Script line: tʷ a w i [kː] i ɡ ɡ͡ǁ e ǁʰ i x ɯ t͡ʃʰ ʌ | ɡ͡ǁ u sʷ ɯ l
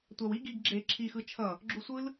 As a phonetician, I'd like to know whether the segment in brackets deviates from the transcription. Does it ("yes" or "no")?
yes